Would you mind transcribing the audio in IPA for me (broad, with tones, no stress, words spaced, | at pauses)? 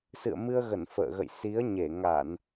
sɨ̰˧˨ə̯mɨ˧ə̯ɣə˧˩n fə̰ː˧˨ɣə̰˧˨j si˨˦ə̯ɲe˧˩ ŋa˧˩˨n